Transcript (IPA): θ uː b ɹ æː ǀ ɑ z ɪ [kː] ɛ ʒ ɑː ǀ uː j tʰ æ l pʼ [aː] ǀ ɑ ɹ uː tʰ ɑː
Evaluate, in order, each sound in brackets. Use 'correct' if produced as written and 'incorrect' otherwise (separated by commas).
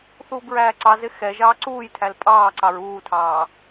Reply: incorrect, incorrect